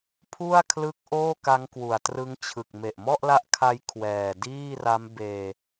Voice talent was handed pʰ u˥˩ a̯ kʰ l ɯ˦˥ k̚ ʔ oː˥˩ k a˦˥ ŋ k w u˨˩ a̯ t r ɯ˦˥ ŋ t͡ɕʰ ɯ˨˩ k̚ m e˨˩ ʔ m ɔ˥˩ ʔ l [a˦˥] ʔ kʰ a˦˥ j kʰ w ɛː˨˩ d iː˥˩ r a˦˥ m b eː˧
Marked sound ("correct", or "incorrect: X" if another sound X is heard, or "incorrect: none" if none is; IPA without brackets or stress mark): correct